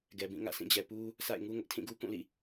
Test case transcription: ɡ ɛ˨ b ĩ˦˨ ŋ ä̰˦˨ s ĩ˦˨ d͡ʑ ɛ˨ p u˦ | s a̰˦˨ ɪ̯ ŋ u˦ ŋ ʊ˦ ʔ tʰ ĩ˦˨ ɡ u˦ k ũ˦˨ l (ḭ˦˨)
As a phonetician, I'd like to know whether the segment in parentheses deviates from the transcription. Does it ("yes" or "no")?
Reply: no